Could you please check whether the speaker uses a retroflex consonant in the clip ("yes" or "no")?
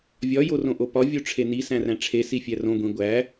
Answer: yes